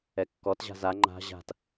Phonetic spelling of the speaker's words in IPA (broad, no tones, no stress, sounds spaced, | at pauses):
ɛ kː ɔ t ʑ a̤ z a ŋ͡ǃ a̤ ʑ a̤ t